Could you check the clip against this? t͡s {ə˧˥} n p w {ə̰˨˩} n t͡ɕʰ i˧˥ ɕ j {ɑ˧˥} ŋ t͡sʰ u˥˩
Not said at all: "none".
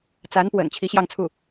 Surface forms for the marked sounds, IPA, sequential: a˧˥, ə̰˨˩, ɑ˥˧

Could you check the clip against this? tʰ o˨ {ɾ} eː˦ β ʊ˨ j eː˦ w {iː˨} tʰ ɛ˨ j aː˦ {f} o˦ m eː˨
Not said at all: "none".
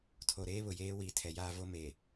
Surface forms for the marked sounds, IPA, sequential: ɾ, iː˨, v

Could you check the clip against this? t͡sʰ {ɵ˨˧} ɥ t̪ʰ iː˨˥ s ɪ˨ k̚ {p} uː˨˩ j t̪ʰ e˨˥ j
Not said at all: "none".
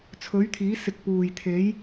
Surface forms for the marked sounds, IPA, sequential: ɵ˨˥, p

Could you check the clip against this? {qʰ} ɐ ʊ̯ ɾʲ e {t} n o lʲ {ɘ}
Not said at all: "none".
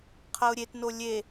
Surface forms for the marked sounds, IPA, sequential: qʰ, t, e

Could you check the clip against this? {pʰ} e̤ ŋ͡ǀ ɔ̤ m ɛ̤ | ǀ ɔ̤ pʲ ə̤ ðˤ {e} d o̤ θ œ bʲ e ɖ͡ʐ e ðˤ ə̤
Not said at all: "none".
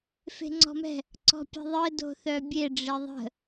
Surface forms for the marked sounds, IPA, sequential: f, ɘ

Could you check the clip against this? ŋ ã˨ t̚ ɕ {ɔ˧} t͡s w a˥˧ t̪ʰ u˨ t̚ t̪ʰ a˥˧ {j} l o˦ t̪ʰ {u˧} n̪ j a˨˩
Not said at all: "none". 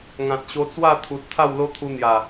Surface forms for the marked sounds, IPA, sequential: o˧, w, u˧

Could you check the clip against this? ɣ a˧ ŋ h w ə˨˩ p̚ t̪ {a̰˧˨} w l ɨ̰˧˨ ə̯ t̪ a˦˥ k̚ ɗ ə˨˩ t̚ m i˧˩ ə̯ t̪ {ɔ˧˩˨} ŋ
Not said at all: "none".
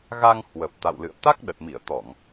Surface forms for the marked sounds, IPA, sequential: a̰˧˨, ɔ˧˩˨

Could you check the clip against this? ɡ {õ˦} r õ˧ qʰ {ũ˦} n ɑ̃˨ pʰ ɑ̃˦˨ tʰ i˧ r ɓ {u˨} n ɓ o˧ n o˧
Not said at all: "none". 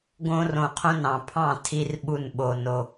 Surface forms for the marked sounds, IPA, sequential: õ˦, õ˦, u˦˨

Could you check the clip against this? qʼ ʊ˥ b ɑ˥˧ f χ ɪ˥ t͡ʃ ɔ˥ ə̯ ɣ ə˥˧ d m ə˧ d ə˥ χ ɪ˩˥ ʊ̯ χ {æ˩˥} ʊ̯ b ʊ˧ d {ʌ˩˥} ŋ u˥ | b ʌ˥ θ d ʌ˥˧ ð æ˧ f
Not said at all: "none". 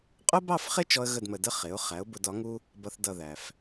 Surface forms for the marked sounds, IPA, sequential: æ˩˥, ɒ˩˥

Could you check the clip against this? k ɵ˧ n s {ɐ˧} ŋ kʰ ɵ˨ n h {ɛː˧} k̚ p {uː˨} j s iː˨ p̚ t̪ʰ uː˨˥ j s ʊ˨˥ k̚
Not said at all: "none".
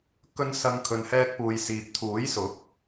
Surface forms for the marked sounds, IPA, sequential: ɐ˧, ɛː˧, uː˨

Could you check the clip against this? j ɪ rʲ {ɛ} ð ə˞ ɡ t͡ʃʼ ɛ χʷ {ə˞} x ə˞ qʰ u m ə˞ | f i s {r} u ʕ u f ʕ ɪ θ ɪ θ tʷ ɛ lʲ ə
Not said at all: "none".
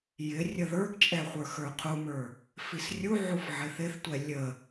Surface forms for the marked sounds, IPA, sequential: ə, ə˞, rʲ

